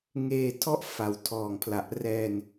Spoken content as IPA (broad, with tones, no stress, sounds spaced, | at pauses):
ŋ eː˧ tʰ ɔ˥˩ ʔ f a˩˦ w tʰ ɔː˨˩ ŋ pʰ l a˨˩ ʔ r ɛː˧ n